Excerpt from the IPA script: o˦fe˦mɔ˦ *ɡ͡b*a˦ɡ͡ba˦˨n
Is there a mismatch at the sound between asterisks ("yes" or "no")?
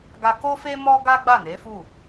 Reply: yes